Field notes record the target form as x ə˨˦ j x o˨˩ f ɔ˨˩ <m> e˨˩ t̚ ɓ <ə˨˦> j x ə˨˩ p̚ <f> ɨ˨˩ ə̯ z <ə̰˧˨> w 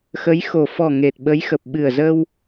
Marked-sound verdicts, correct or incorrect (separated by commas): incorrect, correct, incorrect, incorrect